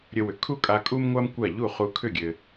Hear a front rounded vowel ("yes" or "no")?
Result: yes